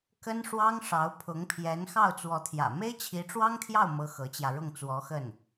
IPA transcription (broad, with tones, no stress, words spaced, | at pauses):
kə˥nʂwɑ˥ŋʂɑ˧˥ʊ̯ pʰʊ˧˥ŋpʰjɛ˧˥n xɑ˥˩ʊ̯t͡swɔ˧˥t̪ʰjä̰˨˩ me˥ɪ̯t͡ɕʰi˧˥ʈ͡ʂwɑ˥ŋt̪ʰjɑ˥˩ʊ̯ mɤ˥xɤ˧˥t͡ɕjä˧ ɻʊ˥˩ŋt͡swɔ˧˥xə˥˩n